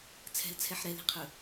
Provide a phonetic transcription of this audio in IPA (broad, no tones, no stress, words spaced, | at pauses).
t͡sʰɛ̤lt͡sʰɛħ ɾɛli̤qʰɵ